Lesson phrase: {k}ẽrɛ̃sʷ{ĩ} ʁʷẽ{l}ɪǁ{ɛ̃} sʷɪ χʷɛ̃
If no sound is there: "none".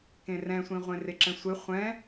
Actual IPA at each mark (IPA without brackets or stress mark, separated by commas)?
k, ĩ, r, ɛ̃